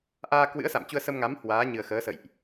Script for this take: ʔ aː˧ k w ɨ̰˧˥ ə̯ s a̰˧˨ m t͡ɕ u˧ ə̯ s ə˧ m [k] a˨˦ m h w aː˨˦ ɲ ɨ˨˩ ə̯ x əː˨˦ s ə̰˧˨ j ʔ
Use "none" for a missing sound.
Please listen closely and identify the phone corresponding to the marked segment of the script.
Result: ŋ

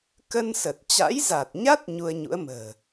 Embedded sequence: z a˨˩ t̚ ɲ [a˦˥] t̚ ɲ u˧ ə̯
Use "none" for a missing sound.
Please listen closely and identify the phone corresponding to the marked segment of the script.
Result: a˦˥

